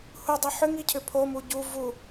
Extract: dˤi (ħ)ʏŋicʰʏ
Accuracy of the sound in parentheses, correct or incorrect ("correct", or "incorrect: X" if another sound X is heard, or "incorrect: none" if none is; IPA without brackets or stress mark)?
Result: correct